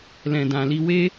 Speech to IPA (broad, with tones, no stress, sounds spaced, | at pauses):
l ɛ̃˨ d ã˨ l i˧ w e˦